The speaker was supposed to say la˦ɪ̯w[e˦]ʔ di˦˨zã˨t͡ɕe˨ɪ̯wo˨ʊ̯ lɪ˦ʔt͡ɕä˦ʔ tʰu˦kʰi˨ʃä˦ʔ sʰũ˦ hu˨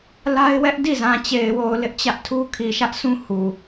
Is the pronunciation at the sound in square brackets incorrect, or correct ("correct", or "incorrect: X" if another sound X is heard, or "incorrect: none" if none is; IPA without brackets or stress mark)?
incorrect: ɛ˦